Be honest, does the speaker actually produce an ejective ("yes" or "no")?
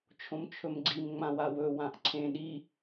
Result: no